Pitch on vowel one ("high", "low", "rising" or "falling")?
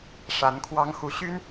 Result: rising